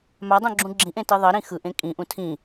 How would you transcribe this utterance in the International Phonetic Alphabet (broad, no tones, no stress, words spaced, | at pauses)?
madˤũɡ͡ǁũ ɡ͡ǁĩʔẽti ðˤʌɾĩ xɯʔẽ kʼĩʔũ tʰĩ